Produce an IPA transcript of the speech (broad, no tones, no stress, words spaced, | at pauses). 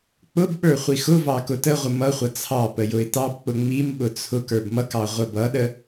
k͡pʊbɓə˞ χʷixʊvɑ kʊtəʁʷə mʌχʷʌ t͡sʰɑ pəjʊɪ̯tɑbk͡pʊ ŋ͡mimɓʊ t͡sʰʊk ə˞bmʌkɑ ʁʷəbʌɗə